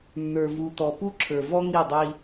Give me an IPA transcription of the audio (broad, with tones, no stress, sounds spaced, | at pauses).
nː ə˞˨ v u˨ t ɔ˨ p u˦ ǁʰ ə˞˨ v ɔ˦ ŋ i˦˨ dˤ i˦